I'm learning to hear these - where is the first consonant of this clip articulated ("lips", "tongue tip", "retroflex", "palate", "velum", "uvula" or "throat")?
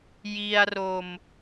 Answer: palate